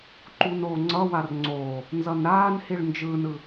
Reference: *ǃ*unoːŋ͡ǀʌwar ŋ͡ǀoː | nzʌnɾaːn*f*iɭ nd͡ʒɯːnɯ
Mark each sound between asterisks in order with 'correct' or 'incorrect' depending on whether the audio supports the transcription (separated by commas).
correct, incorrect